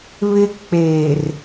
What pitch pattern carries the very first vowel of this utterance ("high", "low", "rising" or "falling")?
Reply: high